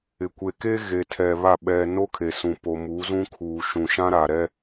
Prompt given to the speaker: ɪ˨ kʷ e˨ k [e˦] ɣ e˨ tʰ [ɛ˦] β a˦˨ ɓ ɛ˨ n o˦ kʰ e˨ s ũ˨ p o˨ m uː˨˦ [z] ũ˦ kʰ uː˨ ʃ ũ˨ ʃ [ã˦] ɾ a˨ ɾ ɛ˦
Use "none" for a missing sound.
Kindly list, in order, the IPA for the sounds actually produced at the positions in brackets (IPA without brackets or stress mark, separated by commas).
e˦, ɛ˨, z, ã˦